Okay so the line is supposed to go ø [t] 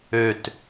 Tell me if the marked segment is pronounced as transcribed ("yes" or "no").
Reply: yes